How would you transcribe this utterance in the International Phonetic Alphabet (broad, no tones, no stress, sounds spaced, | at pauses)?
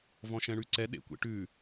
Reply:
v ɔ̃ ʃ ɛ̃ ɳ ʉ ǀ ɛ ɗ ḛ kʷ ḛ ʈ ʉ